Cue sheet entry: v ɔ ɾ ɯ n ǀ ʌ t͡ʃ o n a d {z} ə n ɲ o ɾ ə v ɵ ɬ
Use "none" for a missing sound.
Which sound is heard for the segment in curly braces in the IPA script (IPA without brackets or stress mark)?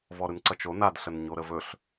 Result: ɬ